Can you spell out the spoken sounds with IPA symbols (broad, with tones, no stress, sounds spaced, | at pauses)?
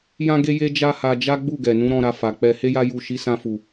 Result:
j ã˦ ɡ e˦ j e˦ d͡ʒ a˦ h a˧ d͡ʒ a˦ ɡ͡b u˦˨ ɡ ɛ˨ n ũ˨˦ ɾ ɔ̃˧ ɾ a˧ f a˨ k͡p ɛ˧ h e˦ j a˦ j u˦˨ ʃ i˨˦ s ã˧ f u˨